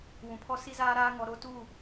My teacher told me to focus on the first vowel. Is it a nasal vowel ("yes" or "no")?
yes